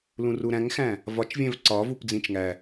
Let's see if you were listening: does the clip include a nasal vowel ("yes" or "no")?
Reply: yes